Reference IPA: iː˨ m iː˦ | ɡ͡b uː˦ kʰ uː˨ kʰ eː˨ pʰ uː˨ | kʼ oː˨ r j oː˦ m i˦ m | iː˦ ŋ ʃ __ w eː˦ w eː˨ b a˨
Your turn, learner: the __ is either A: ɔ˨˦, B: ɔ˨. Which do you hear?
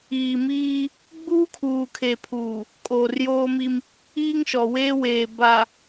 B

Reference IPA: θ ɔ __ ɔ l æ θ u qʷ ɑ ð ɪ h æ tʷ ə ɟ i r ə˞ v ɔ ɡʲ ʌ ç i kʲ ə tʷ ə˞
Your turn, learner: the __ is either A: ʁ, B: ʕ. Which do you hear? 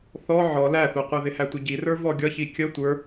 B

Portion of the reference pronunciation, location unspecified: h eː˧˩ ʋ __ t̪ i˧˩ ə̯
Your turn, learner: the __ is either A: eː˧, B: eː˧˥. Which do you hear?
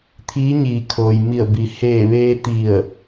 A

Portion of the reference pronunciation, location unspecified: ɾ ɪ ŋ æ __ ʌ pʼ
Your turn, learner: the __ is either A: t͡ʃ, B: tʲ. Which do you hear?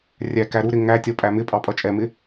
B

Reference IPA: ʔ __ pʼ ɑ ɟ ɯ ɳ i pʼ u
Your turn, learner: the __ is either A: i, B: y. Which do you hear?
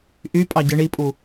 B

